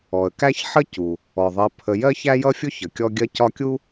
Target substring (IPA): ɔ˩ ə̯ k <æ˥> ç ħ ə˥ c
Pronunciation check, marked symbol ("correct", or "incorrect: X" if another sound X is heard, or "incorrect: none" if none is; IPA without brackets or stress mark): correct